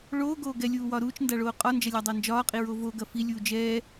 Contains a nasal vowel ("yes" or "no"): no